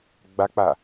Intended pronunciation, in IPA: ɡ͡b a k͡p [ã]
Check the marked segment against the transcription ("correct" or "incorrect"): incorrect